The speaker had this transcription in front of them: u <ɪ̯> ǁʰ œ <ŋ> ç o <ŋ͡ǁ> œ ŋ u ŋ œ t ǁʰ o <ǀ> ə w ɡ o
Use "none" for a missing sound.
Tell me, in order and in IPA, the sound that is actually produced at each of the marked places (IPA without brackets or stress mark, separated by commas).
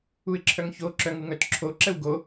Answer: ɪ̯, ŋ, ǁ, ǁ